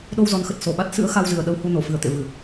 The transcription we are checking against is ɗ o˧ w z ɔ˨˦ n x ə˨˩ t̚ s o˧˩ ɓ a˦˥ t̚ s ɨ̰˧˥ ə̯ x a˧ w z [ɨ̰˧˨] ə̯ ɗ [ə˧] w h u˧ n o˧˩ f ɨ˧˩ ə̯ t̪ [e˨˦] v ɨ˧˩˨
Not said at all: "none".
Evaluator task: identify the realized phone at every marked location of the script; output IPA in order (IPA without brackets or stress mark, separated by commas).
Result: ɨ˧˩, ə˧, ḛ˧˨